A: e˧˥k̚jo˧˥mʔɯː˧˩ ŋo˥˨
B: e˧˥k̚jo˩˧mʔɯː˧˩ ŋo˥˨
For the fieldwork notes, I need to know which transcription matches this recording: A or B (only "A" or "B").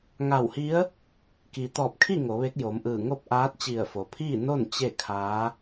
B